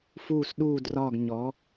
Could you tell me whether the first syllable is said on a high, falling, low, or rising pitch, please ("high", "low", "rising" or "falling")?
falling